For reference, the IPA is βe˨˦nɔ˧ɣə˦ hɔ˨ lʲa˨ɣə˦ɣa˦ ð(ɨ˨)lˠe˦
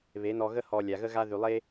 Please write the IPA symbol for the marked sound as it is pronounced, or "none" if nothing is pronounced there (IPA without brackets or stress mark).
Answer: y˨